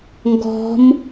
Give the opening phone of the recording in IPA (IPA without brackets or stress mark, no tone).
ŋ